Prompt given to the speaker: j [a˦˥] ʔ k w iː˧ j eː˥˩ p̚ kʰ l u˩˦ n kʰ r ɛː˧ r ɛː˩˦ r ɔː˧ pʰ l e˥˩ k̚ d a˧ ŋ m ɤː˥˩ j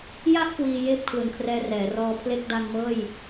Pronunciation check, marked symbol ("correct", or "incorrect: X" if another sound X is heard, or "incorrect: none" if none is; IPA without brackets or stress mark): incorrect: a˥˩